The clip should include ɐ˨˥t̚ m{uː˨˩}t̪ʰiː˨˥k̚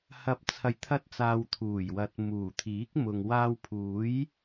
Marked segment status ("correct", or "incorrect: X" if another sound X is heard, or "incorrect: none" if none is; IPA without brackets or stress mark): correct